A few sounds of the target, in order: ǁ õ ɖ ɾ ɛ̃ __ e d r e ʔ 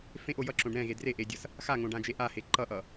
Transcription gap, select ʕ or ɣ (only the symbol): ɣ